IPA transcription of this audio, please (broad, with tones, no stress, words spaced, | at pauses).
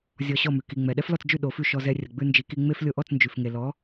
zʲɔ˧ɕɔ˥˩mʉ˩ ki˩ ŋ͡mɛ˩ɗɛ˥flɔ˥˩t͡sd͡ʒʉ˥˩ ɗo˩˥fʉ˥˩ ʃɔ˧zɛ˧ rʲə˩ɡ͡bʉ˧ nd͡ʒi˩˥ki˧ŋ͡me˥f lʲo˧ʔɔ˥˩t͡snd͡ʒʉ˩fŋe˩ lɔ˩˥